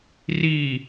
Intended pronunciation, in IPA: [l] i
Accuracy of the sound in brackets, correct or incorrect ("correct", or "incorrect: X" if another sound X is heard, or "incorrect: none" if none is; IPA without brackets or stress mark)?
incorrect: r